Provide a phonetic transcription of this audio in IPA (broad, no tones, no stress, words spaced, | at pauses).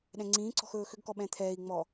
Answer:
ɗɛ̃ŋ͡ǀĩːǀɔ̤x ɵːxʏɡkɔ ɓɛ̃t̪ʰɛːi̯ŋ͡mɔ